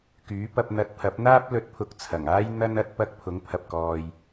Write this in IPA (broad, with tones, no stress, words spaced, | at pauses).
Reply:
kyː˨˥pɐ˧p̚n̪ɐ˧t̚ pʰɐ˨˥p̚n̪aː˥p̚ lɵ˨˥t̚pʰʊ˨k̚ t͡sʰɐ˨˩ŋaː˥j n̪ɐ˥nɐ˥t̚ pɐ˧k̚ pʰʊ˨˥ŋpʰɐ˨p̚kɔː˨j